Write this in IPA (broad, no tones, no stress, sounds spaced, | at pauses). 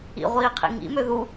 ḭ ʁʷ iː qʰ ḭ ŋ ḭ m ø ð u